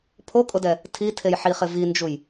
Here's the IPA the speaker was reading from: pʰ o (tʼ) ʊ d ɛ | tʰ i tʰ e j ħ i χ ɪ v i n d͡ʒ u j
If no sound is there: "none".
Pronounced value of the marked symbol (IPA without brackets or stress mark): kʼ